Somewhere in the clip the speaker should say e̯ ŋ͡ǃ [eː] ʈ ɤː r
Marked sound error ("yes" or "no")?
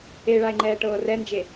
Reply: yes